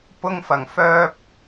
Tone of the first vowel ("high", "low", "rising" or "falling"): high